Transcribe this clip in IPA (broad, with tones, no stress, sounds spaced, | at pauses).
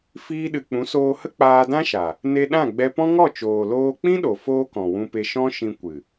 f iː˧ ɗ ɨ˨ k͡p ũ˨˦ s oː˧ h ə˦ k͡p aː˧ d ã˦ ʃ a˨ | n e˧ ɗ ã˦˨ ɡ͡b ɛ˧ p ɔ̃˦ ŋ ɔ˦˨ t͡ʃ oː˨ l oː˧ k͡p ĩ˦ ɗ o˨ f oː˦ k ɔ̃˨ w ũ˧ p e˧ ʃ ɔ̃˦ ʃ ĩ˧ kʷ ɨ˨